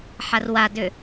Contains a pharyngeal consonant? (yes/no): yes